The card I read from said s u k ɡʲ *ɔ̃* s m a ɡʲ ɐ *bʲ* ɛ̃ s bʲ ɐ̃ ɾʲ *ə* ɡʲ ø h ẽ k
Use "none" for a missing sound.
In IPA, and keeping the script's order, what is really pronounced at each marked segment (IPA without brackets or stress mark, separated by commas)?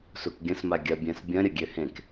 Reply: ə̃, bʲ, ə